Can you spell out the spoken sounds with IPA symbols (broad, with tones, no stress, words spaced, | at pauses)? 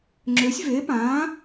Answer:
ŋ͡ǁø˨˥sʲve˨˥pãː˨˥